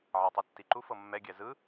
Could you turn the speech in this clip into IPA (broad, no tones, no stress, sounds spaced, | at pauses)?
ʕ a tˤ o tː i ǃ u f ɤ mː ɛ ɡʲ ɛ z ɯ